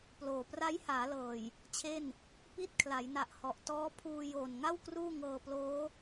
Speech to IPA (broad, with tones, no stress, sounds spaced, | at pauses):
p l oː˨˩ p r a˦˥ j h aː˩˦ l ɤː˨˩ j | t͡ɕʰ e˥˩ n | p i˥˩ t̚ kʰ l a˩˦ j n a˨˩ ʔ h ɔ˨˩ ʔ t ɔː˦˥ pʰ uː˧ j oː˨˩ n ŋ a˥˩ w k r uː˥˩ ŋ ɤː˧ p l oː˦˥